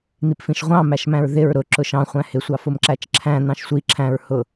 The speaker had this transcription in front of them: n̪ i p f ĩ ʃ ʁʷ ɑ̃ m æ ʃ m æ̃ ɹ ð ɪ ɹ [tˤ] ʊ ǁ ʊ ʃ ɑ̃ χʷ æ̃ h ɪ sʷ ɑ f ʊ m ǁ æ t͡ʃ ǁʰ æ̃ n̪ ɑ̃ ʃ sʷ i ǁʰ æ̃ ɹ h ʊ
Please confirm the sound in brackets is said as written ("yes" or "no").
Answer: no